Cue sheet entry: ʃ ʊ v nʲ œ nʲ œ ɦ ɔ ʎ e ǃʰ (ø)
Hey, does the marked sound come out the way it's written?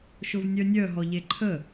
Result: no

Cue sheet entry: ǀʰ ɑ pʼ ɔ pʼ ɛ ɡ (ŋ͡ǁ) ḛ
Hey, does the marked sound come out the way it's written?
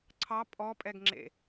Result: yes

